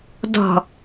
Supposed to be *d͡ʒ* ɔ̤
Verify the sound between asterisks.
incorrect: d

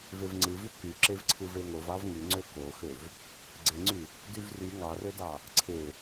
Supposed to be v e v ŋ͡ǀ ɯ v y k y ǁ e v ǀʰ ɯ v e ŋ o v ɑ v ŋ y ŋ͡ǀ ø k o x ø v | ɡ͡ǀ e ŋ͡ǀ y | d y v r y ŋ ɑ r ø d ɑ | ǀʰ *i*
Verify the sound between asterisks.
incorrect: e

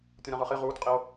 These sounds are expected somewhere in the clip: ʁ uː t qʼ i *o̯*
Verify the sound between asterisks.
correct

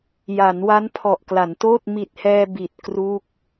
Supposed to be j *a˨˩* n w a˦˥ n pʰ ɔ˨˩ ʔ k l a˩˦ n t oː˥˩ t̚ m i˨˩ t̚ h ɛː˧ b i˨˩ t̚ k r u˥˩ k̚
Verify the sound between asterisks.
incorrect: a˩˦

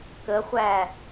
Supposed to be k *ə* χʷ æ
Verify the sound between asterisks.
correct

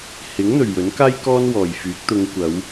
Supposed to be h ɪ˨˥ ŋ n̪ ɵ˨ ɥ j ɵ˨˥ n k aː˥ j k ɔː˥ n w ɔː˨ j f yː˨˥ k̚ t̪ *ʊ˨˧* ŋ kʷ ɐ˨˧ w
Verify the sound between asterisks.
correct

